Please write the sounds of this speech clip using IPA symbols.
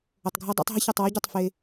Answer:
ə˧ tˤ ɡʱ ɤ˥ dˤ o̰˥ tˤ ɦ ə˥ ç ɤ˧ tˤ w ɤ˥ ɟ ɛ˧ tˤ f e˥

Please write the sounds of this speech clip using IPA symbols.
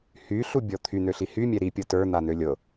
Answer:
h y ɬ u bʲ ɔ t̪ʰ y n̪ ø ɬ i h y mʲ ɛ ɾ i pʲ ɤ t ə˞ n̪ a n̪ ø lʲ ɤ

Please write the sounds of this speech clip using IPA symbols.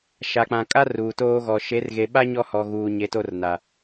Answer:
ʃ a˨ k͡p ã˨ kʼ a˦ r uː˨ t oː˦ ɣ ɔ˨ ʃ e˨˦ r ɣ e˨ ɓ a˦ ɲ ɔ˦ h ɔ˨ ɣ uː˨ ɲ e˨˦ t o˦ r n a˨

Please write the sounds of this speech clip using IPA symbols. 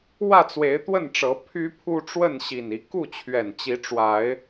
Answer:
w ä˥˨ t͡s w e˨˦ ɪ̯ t̪ w ə˥˨ n ʈ͡ʂ ɤ˨˦ pʰ y˦ pʰ u˦ ʈ͡ʂ w ə˥˨ n ɕ i˨˩ n i˦ k u˥˨ t͡ɕʰ ɥ ɛ˨˩ n t͡ɕ i˨˦ ʈ͡ʂ w a˨˦ ɪ̯

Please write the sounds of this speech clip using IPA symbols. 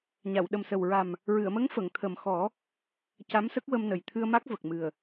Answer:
ɲ a˨˩˨ w ɗ ə˨˩ m s ə˨˩ w ɹ a˨˩ m | ɹ ɨ˨˩˨ ə̯ m ə˧˥ ŋ f ə˨˩˨ ŋ t̪ʰ ə˨˩ m x ɔ˨˩˦ | c a˧˥ m s ə˦˥ k̚ w ə˧ m n ə˨˩ j t̪ʰ ɨ˧ ə̯ m a˦˥ k̚ v ə˨˩ k̚ m ɨ˨˩ ə̯

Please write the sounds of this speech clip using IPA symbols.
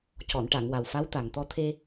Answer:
c ɔ˨˩˨ n ʈ a˨˩˨ ŋ w a˨˩ w f a˧˥ w t̪ a˨˩ ŋ t̪ ɔ˧ t̪ʰ e˧

